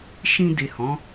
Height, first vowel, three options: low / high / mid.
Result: high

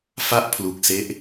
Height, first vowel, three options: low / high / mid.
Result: low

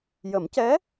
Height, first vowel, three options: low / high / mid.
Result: mid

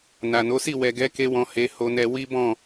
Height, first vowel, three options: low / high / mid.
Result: low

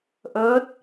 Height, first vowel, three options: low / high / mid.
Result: mid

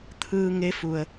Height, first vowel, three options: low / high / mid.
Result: high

